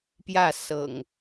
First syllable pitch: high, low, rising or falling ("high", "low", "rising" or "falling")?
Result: falling